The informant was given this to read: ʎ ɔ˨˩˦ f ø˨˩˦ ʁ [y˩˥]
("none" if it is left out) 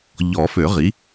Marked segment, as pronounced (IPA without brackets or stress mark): i˩˥